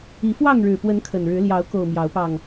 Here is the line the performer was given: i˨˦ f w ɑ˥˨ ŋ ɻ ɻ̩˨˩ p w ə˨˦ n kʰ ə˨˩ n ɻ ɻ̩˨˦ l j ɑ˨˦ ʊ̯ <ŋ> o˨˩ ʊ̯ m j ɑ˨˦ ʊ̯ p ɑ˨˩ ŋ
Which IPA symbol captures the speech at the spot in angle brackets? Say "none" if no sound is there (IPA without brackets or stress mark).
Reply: k